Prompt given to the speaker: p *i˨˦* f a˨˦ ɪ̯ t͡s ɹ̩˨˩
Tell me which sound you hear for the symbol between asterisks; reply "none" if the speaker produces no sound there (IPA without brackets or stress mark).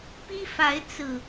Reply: i˦